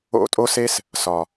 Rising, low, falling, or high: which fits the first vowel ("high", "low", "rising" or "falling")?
high